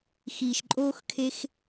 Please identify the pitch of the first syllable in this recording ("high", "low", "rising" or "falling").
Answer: low